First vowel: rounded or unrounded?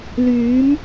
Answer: rounded